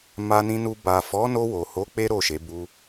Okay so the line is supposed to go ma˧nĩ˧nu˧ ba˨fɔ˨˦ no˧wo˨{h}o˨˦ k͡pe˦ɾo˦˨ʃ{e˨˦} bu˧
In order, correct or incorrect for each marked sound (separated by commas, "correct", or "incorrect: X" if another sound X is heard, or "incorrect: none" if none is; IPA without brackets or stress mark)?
correct, correct